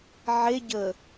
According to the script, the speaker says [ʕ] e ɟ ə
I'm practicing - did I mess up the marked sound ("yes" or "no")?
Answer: no